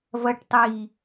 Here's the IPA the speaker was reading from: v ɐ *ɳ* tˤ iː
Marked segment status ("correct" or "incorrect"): incorrect